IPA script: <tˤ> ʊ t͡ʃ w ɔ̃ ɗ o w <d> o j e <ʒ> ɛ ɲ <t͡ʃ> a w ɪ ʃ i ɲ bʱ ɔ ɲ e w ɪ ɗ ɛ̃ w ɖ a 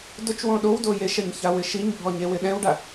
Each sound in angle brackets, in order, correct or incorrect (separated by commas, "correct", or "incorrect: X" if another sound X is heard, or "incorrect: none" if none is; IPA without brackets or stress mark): incorrect: d, correct, incorrect: ʃ, incorrect: ç